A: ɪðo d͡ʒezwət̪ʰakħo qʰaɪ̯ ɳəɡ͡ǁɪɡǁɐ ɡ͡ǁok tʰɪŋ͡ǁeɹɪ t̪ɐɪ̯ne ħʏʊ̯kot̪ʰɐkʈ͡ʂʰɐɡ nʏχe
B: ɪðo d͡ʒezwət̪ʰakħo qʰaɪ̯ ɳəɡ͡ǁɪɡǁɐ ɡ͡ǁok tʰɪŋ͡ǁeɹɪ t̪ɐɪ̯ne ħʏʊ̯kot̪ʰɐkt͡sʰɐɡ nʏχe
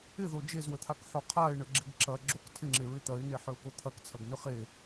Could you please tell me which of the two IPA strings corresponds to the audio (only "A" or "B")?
B